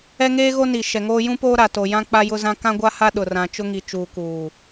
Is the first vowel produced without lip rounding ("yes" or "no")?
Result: yes